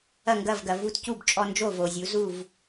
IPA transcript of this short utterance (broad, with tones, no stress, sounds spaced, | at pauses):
ɐ˥˨ ŋ ɡ ɐ˥˨ v ɡ ɐ˨ v u˦ t c u˥˨ b t͡ʃʼ ɔ˦ n d͡ʒ o˥˨ v o˨ zʲ u˨˦ z u˥˨ v